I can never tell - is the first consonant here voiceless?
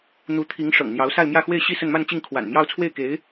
no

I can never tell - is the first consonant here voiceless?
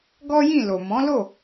no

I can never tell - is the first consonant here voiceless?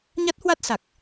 no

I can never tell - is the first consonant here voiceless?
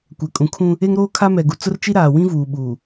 yes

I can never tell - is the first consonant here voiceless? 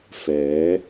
yes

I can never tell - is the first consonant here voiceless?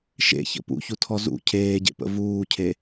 yes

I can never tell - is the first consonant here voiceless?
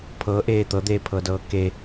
yes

